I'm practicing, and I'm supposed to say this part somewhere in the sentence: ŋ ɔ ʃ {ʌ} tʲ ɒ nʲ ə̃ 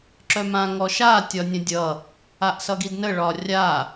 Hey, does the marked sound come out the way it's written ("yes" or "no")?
no